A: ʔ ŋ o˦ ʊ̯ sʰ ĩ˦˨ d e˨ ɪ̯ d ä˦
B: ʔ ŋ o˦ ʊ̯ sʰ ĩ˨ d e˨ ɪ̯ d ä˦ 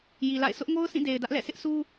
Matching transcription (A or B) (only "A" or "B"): A